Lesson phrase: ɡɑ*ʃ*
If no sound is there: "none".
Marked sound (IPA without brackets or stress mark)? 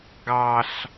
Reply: ɬ